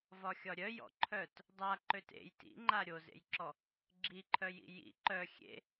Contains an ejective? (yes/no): no